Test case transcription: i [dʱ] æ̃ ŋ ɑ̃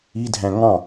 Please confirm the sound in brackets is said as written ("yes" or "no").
yes